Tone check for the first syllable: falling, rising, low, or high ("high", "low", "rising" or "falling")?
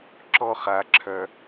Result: high